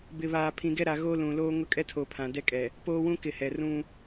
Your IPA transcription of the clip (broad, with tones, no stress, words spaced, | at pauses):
bɪ˨βaː˨ pʰĩ˨ɡɛ˦ɾa˨ ɣo˦ lũ˨loː˦ ŋʊ˦kʼɛ˦tʰo˨ pʰã˨dɛ˦kʼɛ˨ | poː˦wũ˦kɪ˨ hɛ˨rũ˦